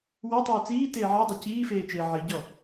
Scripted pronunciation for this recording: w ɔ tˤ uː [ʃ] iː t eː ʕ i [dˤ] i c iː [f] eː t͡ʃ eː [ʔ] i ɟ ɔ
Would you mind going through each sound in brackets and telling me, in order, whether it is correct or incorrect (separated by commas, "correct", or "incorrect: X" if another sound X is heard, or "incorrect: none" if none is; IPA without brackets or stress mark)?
incorrect: t͡s, correct, correct, incorrect: ʕ